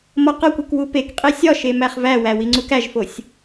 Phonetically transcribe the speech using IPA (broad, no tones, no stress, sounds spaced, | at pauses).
m ɒ q ɒ kʷ u k w u p e k qʼ i sʲ ɒ ʃ e m æ χ v æ w æ w i ŋ͡ǀ u k æ ʒ f o sʲ